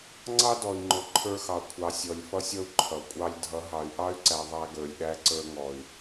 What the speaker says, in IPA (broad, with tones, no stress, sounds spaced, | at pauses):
ŋ͡ǀ ɑ˦ d ɔ˨ i̯ ŋ͡ǃ ʊ˨ ǃʰ ə˞˦ x ɑ˨ kʷʰ ɑ˨ sʲ ɔ˨ lʲ f ʌ˦ sʲ ʌ˦ u̯ ǃʰ ʌ˨ kʷʼ ɑ˦ lʲ dʱ ʌ˨˦ ɦ ɑ˨ y̯ ʔ ɑ˦ y̯ ǀ æ˨ ðˤ æ˦ ɡ ə˞˨ lʲ ɗ æ˦ ǀ ə˞˦ ŋ ɔ˨ y̯